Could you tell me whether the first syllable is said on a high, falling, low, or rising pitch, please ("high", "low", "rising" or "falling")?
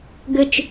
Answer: high